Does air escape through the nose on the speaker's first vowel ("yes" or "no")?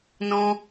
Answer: yes